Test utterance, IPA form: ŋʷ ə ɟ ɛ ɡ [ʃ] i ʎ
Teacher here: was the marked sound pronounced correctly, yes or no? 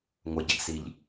no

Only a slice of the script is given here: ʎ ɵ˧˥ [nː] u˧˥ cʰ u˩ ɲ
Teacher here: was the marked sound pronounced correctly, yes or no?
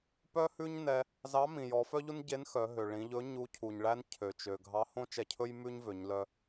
no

